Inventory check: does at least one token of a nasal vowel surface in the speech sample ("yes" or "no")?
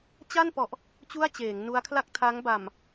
no